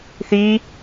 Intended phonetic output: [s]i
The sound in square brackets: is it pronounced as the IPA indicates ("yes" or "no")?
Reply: no